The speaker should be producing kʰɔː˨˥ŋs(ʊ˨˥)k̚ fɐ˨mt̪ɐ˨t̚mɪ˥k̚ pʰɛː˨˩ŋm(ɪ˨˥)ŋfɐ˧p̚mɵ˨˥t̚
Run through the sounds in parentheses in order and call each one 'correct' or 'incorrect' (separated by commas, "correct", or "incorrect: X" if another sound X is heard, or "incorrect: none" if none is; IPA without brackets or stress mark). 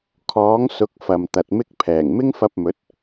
correct, incorrect: ɪ˥